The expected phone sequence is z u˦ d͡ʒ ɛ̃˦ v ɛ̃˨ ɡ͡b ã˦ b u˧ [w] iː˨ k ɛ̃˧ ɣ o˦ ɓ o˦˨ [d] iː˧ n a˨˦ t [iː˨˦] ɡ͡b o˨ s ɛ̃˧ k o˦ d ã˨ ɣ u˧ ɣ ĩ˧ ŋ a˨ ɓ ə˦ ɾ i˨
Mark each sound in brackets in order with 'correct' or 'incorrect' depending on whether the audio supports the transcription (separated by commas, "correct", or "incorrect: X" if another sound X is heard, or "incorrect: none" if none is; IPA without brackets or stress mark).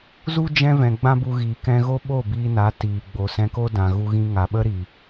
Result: incorrect: ɣ, incorrect: b, incorrect: iː˨